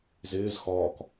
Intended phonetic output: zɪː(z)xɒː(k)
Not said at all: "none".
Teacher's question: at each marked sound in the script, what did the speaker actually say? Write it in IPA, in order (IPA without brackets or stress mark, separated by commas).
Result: z, k